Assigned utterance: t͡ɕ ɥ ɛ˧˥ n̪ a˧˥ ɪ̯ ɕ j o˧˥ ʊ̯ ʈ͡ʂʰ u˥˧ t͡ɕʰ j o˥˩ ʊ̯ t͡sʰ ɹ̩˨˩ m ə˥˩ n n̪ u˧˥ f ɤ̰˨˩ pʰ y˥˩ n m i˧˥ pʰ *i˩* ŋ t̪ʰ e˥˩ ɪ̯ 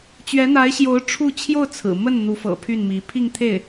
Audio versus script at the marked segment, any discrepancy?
yes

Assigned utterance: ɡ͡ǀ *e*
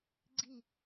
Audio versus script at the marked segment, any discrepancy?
yes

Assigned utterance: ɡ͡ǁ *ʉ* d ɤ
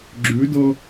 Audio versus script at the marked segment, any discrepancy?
no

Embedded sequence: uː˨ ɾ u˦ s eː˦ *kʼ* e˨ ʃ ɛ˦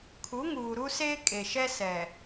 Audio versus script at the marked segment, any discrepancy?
no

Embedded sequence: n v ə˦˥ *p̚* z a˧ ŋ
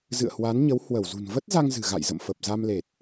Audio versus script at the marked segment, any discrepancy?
yes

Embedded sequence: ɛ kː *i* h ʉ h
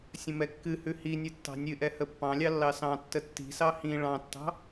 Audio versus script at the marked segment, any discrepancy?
yes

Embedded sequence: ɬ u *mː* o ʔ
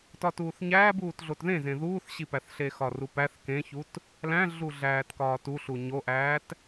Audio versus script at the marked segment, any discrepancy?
yes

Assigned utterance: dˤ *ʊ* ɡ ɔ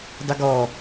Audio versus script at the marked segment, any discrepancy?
no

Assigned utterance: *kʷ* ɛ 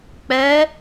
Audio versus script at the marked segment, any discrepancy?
yes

